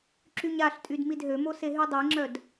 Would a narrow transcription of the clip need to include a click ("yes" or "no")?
yes